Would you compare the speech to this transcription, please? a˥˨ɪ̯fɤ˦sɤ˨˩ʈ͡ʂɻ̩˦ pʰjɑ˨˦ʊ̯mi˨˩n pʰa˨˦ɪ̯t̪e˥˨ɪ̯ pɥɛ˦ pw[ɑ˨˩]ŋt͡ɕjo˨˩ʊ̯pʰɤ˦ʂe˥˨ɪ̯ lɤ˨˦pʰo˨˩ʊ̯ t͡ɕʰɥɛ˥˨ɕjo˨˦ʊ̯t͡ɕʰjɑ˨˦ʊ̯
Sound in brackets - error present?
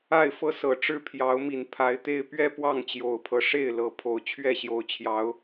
yes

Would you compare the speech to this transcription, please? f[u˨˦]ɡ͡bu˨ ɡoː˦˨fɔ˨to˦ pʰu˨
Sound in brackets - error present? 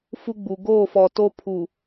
yes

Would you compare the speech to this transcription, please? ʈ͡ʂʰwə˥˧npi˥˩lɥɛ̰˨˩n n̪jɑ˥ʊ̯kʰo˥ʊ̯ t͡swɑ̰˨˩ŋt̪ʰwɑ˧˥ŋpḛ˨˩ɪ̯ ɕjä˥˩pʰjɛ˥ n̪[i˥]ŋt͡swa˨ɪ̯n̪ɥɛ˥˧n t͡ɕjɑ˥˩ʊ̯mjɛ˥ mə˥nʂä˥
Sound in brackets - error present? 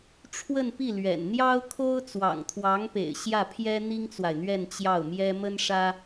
no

